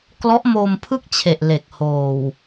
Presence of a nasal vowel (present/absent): absent